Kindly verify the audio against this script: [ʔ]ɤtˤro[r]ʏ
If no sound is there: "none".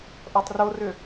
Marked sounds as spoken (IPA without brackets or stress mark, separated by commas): ʔ, r